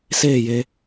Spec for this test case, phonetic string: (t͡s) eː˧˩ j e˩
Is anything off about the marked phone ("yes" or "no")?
yes